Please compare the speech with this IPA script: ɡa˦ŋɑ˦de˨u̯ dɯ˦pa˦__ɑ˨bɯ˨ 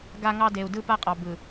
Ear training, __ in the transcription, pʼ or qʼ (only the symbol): qʼ